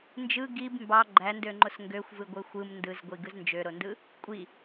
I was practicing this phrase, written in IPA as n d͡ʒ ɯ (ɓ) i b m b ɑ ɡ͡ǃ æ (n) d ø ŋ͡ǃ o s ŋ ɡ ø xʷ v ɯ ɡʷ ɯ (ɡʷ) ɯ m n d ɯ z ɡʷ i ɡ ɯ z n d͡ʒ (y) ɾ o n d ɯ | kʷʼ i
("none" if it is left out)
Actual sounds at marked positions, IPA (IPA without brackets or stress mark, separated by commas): ɡ, n, xʷ, ø